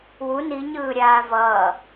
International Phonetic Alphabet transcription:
wu niɲɯːɾʲaː vʌː

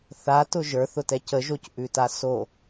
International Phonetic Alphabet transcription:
θatʊ ʒə˞θʊtɛ cəʒocʔʉta so

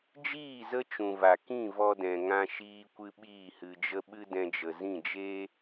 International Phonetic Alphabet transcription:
d͡ʒiː˦˨ zə˦t͡ʃũ˨va˨kĩ˦˨ vɔ˧dɛ̃˨ ŋã˧ʃiː˧kʷɨ˧ ɓiː˦˨hɨ˧d͡ʒə˦ ɓɨ˦dɛ̃˧d͡ʒə˨zĩ˦˨ d͡ʒeː˦

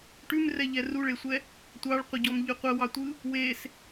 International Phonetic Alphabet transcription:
ʈʉmrɛʎɛ ruɭesʷɛ | tʷɑɭqʷəɟɔmʎʉ qʷɜwɑtʷɯ | wes

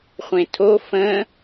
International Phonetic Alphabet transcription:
χʷẽtʰo fə̃

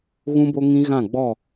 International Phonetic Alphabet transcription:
ɣũ˦bo˦ŋĩ˦ ɣã˦˨ɡ͡bɔ˦˨

